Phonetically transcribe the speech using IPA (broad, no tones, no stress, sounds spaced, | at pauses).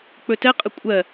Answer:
k͡p ɵ t ɛ qʼ ə kʷʼ ɜ